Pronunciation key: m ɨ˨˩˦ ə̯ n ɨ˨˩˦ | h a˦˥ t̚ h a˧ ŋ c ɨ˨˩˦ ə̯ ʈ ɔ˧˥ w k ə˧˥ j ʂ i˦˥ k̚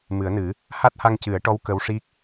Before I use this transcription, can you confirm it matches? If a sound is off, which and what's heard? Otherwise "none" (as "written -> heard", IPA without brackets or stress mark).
j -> w